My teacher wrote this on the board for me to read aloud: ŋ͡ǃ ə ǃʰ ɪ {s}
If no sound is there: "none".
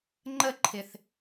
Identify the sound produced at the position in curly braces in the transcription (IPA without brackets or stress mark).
θ